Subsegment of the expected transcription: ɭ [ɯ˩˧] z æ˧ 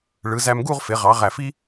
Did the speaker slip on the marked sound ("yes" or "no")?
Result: no